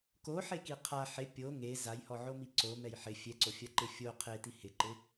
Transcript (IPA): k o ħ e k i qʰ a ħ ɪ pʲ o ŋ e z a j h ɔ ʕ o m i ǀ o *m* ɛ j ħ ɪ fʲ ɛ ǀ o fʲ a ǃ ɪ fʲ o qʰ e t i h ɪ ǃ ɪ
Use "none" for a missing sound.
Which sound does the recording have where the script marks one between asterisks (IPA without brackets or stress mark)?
m